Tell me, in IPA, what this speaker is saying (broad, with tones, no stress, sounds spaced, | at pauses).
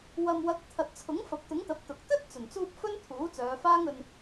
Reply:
w ɐ˨ m w ɐ˨˥ k̚ t̪ʰ ɐ˨ t̚ t͡sʰ ʊ˨˥ ŋ f ɐ˨˥ p̚ t̪ ʊ˨˥ ŋ t̪ ɐ˨˥ p̚ t̪ ʊ˨ k̚ t̪ ɵ˥ t̚ t͡s ɵ˨˩ n t͡s uː˧ p̚ f ɵ˥ n t̪ʰ uː˨˥ t͡s œː˨˧ f aː˥ ŋ ɵ˧ n